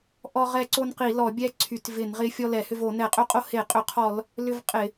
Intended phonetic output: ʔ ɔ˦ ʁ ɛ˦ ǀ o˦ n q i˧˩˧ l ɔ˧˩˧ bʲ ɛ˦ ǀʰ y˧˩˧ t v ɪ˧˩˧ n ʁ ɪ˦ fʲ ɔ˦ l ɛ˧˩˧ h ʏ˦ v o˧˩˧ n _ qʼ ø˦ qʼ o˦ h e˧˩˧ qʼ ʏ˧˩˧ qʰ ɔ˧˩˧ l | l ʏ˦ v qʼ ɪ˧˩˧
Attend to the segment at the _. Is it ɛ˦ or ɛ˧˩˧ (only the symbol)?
ɛ˧˩˧